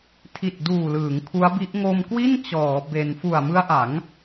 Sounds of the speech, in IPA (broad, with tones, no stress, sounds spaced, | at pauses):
tʰ i˨˩ t̚ d uː˨˩ l ɯː˩˦ ŋ kʰ u˦˥ a̯ b i˦˥ ʔ ŋ o˧ m k w i˥˩ n t͡ɕ ɔː˩˦ b e˧ n f u˨˩ a̯ m ɯ˦˥ a̯ ʔ a˩˦ ŋ